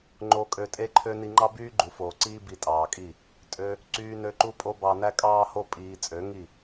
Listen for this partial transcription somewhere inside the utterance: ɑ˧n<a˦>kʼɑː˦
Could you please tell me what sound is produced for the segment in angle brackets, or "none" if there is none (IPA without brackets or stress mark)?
æ˦